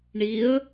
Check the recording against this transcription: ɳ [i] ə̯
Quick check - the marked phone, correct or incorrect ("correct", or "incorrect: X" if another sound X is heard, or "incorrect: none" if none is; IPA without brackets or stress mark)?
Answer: correct